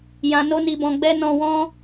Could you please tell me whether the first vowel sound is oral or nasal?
nasal